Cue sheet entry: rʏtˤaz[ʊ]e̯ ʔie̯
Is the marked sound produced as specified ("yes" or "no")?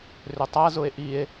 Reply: yes